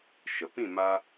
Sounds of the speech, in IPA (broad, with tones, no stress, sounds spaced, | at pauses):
ʃ ə˨ p ĩ˦˨ m a˧